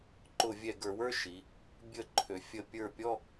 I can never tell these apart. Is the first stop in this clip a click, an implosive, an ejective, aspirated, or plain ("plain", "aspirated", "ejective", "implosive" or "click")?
click